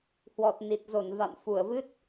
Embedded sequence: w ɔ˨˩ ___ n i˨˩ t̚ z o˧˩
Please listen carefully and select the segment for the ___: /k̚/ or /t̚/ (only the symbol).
t̚